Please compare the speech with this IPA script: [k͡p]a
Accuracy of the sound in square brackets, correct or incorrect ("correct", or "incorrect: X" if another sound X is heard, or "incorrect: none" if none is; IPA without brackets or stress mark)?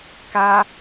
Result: incorrect: k